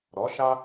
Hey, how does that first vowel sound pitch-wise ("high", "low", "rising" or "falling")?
rising